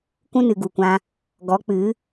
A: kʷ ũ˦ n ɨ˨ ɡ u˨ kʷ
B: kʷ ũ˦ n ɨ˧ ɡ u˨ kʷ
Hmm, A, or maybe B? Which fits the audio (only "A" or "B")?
A